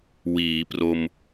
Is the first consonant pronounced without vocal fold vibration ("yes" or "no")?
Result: no